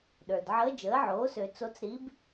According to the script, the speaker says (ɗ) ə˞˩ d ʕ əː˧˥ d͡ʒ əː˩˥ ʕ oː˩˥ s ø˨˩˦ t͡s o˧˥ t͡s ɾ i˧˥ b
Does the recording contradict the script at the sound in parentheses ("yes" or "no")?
no